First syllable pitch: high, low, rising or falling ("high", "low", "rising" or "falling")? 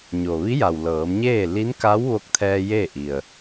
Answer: low